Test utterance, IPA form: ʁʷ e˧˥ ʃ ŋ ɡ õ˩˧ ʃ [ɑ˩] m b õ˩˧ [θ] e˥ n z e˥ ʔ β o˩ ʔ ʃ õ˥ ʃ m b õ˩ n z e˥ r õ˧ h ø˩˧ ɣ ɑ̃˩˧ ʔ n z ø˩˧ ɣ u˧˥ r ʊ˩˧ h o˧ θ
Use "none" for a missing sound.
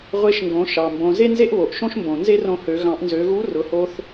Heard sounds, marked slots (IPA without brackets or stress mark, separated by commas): ɑ˩, z